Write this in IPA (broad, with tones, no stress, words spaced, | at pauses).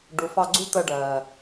ɖu˨fɑ˧ɡ͡ǀṳ˦ t̪əː˧ɖɜː˨